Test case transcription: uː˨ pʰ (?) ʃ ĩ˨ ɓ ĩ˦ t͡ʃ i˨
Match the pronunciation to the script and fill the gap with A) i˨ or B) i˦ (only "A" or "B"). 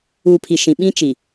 A